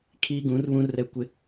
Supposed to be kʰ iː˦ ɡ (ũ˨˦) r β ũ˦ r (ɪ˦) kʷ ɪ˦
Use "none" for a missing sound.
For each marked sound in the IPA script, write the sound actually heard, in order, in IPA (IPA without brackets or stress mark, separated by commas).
ũ˨˦, ɛ˦